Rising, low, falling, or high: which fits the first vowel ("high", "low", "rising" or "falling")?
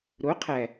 rising